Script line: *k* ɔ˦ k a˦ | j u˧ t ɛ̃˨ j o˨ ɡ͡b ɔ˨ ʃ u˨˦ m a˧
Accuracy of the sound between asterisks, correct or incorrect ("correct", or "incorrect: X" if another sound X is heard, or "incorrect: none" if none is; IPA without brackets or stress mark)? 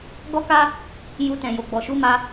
incorrect: ɡ